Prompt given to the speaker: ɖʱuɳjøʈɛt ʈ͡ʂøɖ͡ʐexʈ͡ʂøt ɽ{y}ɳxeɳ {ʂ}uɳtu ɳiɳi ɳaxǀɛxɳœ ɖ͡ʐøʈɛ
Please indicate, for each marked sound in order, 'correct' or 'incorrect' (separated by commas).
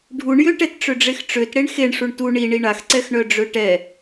incorrect, correct